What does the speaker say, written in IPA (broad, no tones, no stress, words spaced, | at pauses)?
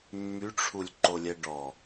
mːyʈ͡ʂʰulʲ ǃolʲɛɖɔ